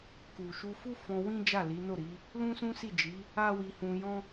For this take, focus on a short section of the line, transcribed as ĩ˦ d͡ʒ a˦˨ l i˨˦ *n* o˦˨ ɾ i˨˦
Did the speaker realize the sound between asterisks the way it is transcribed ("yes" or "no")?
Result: yes